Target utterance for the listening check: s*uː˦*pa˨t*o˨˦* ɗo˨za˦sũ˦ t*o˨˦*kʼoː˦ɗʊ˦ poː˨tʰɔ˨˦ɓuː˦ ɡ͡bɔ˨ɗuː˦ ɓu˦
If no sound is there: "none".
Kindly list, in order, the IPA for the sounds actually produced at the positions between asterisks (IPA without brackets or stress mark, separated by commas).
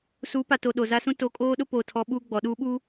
uː˨˦, o˨, o˨˦